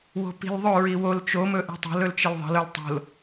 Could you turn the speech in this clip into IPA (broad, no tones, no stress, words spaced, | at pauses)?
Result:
wo̤pi̤lðˤɵɹi wol t͡ʃomɵ ʔi̤tˤo̤lɵl t͡ʃəlðˤə̤lɵl tˤo̤l